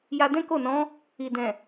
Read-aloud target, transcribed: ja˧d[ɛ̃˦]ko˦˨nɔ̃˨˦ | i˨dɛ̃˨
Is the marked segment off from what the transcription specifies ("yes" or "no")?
no